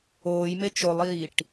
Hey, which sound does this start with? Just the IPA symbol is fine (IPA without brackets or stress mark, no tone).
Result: oː